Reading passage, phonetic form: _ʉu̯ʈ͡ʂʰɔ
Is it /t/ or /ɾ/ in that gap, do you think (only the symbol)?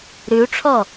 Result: ɾ